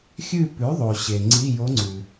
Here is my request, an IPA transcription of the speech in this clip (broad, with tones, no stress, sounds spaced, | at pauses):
xʲ ʉ˦˨ p ʉ˩˥ ðˤ o˩ ɕ e˩ ŋ͡ǀ i˧˥˧ j o˧˥ ŋ͡ǀ ʉ˩